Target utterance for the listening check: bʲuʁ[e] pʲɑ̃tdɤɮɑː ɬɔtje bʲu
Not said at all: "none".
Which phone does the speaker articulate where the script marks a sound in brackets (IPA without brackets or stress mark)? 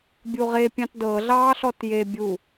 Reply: e